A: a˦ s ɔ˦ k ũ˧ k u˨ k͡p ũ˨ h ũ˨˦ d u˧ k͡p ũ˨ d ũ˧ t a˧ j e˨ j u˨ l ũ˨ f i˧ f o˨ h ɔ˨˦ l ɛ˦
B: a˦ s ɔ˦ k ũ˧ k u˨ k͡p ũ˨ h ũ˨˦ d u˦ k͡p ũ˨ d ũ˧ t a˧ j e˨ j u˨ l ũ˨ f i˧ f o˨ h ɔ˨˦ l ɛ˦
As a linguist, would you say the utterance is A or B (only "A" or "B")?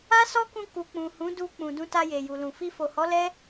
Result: A